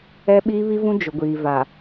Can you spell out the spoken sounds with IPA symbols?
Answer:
ɛ˦ ɓ iː˦ β i˦ v ũ˦ d͡ʒ ʊ˨ ɡʷ iː˨ v a˨

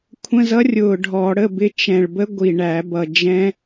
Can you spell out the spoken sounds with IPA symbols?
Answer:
kʷʰ ə̃˧˥˧ z ʌ˦˥ rʲ ʊ˨˩ ɖʱ ɔ˧˩˧ ɽ ə˧˥˧ b ɪ˦˥ t͡ʃ ɛ̃˨˩ ɭ b ə˦˥ ɡʷ i˨˩ ɳ æ˧˩˧ b ʌ˨˩ d͡ʒ ɛ̃˦˥

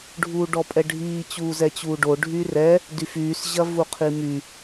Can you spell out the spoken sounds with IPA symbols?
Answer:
ɖʱ uː ɖ ɔ pʼ ɛ ɖʱ iː t͡ɕ uː z ɛ t͡ɕ uː ɖ o ɖʱ y r ɛ | d y f yː s ʑ ɐ v u qʰ i m y

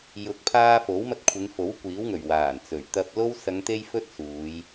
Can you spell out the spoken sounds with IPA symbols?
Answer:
j ʊ˨˥ k̚ pʰ aː˧ f o˨˥ w m ɐ˧ t̚ kʷʰ ɪ˨˧ ŋ f o˨˥ w kʷ iː˨˥ w ŋ ɵ˨˩ ɥ w aː˨˩ n t͡s ɵ˨˩ ɥ t̪ ɐ˧ p̚ l o˥ w s ɐ˨˧ ŋ t̪ e˧ j f ɵ˧ t̚ s uː˨˧ j

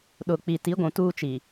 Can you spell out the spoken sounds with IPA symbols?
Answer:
ɗ ʊ˨ k͡p i˨ t i˨˦ ɡʷ ũ˨ t uː˦ t͡ʃ i˨

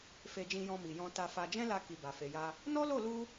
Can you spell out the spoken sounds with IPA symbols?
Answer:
f e˧ d͡ʒ ĩ˧ j ɔ̃˧ m i˨ j ɔ̃˧ t a˧ f a˧ d͡ʒ ɛ̃˦ l a˧ k i˨ b a˨ f e˨ j a˧ | n ɔ˦ l o˦˨ l u˧

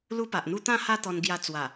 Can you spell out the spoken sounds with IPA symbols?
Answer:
l u˦ p a˨ ʔ n̪ u˦ t̪ ã˥˧ h a˦ t̪ ɔ˧ n ɡ j a˧ t͡s w a˨˩

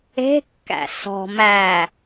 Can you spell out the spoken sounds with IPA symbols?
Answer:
e̤ kː æ̰ s ɔ̤ m æ

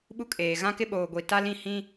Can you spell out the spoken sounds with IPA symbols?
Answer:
ɓ u˦ kʼ eː˨ ɣ ã˦ k ɪ˦ ɓ oː˨ ɡʷ i˨ t a˦ l ĩ˦˨ h ĩ˦

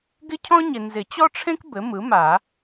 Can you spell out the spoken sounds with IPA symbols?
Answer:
ɡ ɪ˥ cʰ ɔ̃˥ ɲ ɪ˨ n z ɪ˨˩˦ t͡ɕ ɔ˥ ʈ͡ʂʰ ẽ˥ k b ɘ˩˥ m ɯ˩˥ m a˨˩˦

